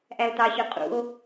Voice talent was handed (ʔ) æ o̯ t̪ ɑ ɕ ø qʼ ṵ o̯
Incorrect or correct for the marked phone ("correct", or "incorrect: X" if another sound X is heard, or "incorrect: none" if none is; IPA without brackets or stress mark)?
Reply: correct